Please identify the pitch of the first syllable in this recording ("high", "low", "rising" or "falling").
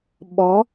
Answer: rising